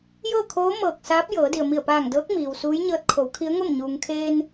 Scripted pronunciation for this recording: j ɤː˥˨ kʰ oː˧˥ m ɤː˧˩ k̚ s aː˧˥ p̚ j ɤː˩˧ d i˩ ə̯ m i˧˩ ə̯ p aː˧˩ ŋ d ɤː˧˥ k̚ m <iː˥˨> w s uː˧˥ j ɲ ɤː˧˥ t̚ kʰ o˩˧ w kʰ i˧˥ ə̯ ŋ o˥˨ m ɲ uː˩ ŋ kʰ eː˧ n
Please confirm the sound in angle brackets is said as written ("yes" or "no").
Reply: no